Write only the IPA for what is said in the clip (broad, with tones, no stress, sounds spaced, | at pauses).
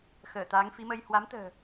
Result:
x əː˧˩ t̪ aː˨˦ ŋ f i˨˦ m ə˧ j h w a˨˦ m t̪ ə̤ː˨˩